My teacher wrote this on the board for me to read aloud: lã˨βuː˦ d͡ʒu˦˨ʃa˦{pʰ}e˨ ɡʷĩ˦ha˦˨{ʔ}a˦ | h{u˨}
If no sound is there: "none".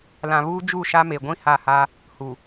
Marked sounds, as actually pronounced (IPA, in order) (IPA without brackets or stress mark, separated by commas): m, h, u˨